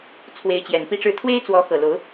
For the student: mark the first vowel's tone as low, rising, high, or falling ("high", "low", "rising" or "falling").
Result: rising